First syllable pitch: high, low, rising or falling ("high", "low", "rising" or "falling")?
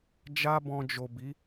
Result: high